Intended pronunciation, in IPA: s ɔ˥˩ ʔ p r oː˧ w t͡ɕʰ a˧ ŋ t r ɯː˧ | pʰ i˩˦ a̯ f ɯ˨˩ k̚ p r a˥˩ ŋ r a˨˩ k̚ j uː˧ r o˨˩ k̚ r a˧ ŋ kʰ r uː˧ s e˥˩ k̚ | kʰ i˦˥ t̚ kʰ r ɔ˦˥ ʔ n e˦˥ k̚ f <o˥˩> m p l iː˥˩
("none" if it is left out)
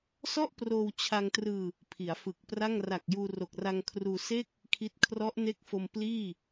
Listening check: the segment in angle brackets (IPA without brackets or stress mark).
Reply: o˧